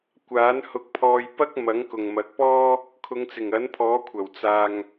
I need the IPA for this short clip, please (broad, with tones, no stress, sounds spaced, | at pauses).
kʷ aː˨˥ n h ʊ˧ k̚ pʰ ɔː˧ j p ɐ˥ k̚ m ɐ˨˥ ŋ k ʊ˨ ŋ m ɐ˨˥ k̚ p ɔː˥ | kʰ ʊ˨˧ ŋ t͡s ɪ˨˩ ŋ ɐ˨˥ n pʰ ɔː˨˥ kʷʰ ɐ˨˩ w t͡s aː˨ ŋ